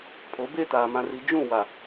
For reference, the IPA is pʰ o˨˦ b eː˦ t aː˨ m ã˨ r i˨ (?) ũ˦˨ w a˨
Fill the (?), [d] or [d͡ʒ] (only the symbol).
d͡ʒ